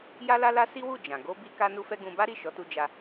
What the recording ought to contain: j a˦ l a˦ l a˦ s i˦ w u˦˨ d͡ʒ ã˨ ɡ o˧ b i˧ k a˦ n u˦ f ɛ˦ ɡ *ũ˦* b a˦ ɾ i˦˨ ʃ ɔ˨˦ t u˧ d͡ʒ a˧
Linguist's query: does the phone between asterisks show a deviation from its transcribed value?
no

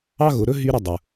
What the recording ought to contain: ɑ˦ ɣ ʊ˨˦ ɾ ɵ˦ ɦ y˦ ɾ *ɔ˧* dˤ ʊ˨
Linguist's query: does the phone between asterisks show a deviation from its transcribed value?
yes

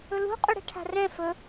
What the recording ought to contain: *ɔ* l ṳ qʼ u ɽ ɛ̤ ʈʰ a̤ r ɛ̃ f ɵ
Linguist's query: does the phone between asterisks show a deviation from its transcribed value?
yes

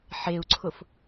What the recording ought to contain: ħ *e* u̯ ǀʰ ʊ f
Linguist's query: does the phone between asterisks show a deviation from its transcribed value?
no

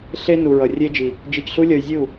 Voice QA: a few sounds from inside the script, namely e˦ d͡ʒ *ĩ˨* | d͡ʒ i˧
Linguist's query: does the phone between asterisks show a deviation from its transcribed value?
yes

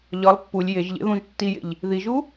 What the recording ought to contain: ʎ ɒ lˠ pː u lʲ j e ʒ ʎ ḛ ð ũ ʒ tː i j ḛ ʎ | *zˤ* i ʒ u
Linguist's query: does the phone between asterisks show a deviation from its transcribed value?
yes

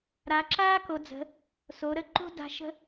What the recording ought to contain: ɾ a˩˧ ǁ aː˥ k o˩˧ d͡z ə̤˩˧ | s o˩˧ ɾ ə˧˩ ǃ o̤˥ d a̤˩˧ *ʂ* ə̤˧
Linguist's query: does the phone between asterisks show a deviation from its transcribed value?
yes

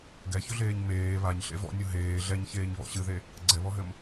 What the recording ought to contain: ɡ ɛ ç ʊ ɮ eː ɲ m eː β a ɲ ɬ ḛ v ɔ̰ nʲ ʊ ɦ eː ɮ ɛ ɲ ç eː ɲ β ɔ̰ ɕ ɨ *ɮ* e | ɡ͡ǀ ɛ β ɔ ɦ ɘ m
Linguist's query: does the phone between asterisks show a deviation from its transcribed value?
yes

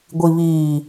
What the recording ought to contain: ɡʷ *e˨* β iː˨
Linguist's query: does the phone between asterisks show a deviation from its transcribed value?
yes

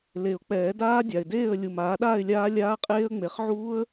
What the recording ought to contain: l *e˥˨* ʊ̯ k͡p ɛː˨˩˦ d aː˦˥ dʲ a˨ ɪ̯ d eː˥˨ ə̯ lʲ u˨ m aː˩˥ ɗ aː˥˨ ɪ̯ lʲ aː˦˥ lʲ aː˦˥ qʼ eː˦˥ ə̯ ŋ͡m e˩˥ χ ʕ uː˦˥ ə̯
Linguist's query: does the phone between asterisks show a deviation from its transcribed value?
yes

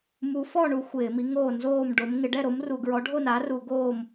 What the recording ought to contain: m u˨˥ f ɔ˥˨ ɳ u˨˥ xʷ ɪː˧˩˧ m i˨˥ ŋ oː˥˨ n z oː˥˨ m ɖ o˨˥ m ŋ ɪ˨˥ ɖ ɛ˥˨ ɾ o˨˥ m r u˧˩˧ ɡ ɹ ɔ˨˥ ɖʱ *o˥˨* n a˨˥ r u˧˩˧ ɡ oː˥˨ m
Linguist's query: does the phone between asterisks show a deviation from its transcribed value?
no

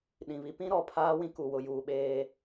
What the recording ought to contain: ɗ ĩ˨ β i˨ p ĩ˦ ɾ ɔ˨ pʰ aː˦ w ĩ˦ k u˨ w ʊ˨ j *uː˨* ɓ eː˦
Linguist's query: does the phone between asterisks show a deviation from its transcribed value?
no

